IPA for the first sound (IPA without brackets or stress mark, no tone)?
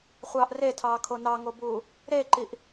χʷ